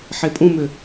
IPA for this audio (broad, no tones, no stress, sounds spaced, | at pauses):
ħ e pʼ ũ m ʏ